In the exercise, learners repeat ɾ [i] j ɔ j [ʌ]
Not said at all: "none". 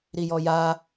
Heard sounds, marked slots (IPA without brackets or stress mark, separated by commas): i, a